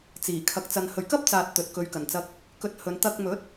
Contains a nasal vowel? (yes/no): no